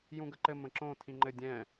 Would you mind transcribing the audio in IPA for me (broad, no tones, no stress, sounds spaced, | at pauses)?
j ũ ɡ ə ǃ ɘ m ə̃ ǁ õ tʰ ĩ ŋ͡ǃ ɘ dʲ ɛ̃